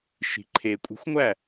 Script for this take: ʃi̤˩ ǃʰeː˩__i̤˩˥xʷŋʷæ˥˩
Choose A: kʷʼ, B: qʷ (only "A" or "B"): A